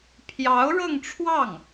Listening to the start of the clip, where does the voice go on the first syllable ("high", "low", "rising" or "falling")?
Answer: rising